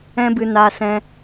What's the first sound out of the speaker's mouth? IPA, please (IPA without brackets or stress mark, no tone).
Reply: ɛ̃